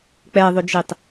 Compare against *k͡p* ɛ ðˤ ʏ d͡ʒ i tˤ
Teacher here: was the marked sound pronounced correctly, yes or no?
yes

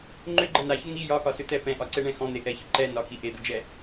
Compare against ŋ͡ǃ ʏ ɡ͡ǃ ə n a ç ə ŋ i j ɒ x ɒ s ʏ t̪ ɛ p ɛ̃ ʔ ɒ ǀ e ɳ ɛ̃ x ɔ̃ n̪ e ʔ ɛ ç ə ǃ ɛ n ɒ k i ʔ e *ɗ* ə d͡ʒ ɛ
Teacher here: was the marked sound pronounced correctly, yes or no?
no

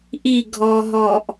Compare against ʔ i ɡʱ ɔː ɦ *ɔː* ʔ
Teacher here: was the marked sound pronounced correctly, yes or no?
yes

